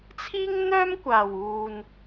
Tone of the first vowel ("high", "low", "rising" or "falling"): high